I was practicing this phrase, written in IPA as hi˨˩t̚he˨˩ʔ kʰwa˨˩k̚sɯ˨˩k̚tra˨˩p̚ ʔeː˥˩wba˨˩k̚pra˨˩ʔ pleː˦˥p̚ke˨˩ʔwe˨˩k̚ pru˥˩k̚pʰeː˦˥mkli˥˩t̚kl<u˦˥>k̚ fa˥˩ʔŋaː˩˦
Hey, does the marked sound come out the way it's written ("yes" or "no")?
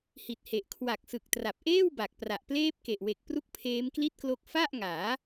no